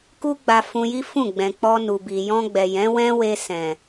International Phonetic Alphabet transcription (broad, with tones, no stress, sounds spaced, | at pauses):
k u˦ ɡ͡b a˧ f ũ˧ j i˦ f ũ˦˨ ɡ͡b ɛ̃˨ k͡p ɔ˧ n u˨ b i˨ j ɔ̃˧ ɡ͡b ɛ˨ j ɛ̃˨˦ w ɛ̃˦ w e˧ s ɛ̃˨